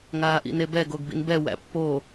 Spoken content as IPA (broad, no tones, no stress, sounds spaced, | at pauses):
ŋ aː ʔ ḭ n e b ɛ ɡ o ɡ b ḭ n b ɛ w æ̰ pː o